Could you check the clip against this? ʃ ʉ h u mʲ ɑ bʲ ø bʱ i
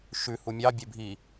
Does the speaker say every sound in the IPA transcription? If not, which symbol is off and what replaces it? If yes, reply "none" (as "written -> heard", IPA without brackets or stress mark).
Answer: none